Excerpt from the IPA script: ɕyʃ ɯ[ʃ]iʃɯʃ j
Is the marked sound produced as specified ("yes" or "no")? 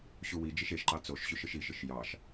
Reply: yes